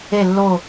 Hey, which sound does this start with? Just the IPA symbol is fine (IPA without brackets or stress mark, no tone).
e